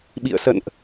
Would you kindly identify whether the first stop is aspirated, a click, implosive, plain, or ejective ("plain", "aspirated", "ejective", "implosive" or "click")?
implosive